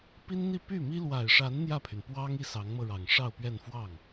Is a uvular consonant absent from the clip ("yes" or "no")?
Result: yes